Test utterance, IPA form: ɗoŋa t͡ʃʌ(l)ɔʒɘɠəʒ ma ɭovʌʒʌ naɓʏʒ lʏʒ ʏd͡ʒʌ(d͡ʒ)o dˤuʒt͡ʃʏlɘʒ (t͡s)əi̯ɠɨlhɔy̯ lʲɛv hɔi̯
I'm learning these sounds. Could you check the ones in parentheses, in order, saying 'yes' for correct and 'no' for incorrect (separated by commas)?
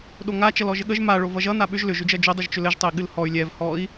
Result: yes, yes, no